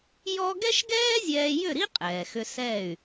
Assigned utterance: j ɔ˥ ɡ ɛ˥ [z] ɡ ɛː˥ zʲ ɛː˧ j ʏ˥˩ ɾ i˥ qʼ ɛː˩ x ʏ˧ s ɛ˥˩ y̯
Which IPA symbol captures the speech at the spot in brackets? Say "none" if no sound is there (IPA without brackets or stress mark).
ʃ